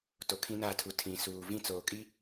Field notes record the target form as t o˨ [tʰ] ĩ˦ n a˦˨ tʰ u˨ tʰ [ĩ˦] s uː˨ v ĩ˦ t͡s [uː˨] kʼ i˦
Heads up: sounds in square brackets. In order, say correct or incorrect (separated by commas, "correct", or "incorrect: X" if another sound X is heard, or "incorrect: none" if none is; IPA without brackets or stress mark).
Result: incorrect: kʰ, incorrect: ĩ˨, incorrect: oː˨